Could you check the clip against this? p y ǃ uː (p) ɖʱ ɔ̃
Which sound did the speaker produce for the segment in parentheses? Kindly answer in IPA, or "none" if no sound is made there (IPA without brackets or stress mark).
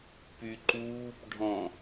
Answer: p